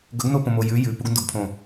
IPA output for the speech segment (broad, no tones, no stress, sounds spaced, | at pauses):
ɡ ɵ ɡ n o p õ m o j ʉ j ʉ p u ɡ n d o ɡ pʰ õ